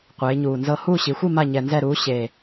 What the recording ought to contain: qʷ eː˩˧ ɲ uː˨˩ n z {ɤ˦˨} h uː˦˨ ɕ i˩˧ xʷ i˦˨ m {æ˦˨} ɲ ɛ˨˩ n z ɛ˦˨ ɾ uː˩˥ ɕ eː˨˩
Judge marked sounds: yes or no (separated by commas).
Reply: yes, no